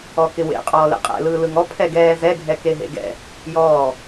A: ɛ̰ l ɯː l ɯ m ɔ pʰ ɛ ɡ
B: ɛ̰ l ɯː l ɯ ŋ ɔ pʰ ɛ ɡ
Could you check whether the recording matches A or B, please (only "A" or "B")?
B